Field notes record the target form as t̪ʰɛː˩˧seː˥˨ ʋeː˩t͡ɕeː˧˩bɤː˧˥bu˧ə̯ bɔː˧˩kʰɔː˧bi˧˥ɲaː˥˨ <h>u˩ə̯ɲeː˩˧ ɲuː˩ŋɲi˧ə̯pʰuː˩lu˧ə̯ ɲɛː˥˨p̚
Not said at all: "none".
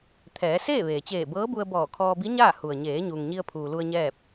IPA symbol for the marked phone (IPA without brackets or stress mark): h